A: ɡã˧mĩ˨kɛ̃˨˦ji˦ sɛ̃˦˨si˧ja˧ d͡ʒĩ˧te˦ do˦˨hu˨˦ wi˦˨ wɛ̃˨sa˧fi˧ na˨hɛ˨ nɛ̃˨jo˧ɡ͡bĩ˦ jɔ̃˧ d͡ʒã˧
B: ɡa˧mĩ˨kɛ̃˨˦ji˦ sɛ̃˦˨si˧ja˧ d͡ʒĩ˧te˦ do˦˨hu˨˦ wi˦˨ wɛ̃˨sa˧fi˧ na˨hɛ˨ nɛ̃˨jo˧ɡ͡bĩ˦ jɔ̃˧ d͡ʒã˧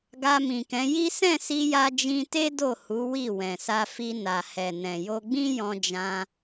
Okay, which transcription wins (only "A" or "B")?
B